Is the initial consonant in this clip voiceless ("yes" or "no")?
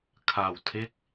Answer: yes